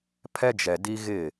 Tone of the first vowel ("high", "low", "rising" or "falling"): high